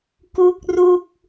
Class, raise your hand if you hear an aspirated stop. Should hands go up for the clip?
no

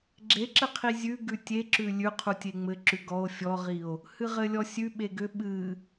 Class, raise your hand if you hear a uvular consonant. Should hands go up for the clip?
yes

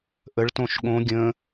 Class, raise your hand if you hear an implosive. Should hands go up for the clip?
yes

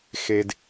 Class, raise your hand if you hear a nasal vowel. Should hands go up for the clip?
no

